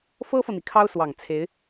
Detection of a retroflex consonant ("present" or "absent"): absent